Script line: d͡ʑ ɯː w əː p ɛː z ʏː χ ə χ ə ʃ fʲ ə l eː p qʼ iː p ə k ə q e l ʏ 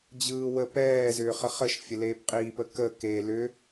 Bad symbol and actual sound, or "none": q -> k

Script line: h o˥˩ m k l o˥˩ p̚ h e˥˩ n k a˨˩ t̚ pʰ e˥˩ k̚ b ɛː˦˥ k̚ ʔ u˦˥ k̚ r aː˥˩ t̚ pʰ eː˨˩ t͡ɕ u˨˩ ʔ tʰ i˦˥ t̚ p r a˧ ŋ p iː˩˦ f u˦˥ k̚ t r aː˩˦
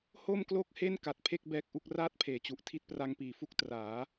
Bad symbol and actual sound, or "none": p̚ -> k̚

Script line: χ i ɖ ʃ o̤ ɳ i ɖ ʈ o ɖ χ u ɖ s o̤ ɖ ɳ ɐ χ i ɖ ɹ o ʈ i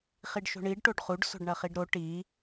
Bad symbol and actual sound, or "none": ɹ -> ɾ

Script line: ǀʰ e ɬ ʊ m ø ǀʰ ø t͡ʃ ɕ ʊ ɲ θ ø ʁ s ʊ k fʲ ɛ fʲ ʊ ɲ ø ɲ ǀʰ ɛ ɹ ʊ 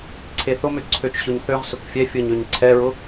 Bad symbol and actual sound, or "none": ɬ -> θ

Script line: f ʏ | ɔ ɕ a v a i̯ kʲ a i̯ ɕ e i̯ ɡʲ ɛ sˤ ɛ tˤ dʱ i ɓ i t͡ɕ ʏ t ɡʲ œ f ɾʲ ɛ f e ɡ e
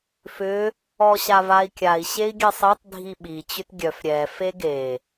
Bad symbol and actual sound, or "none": none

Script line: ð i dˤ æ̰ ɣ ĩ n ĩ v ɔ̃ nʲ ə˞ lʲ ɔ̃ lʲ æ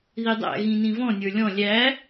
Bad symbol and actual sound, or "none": none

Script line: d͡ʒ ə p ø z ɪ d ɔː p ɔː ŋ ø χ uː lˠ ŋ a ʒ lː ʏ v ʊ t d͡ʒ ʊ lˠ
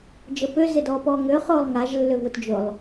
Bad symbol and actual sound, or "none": uː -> ʊː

